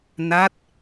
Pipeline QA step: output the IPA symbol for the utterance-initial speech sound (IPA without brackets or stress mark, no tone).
n